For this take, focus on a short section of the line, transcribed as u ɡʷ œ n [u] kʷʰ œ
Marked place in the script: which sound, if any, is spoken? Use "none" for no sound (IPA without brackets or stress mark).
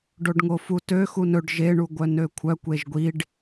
ø